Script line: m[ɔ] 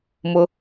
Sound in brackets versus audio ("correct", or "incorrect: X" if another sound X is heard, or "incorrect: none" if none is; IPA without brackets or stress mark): incorrect: ʊ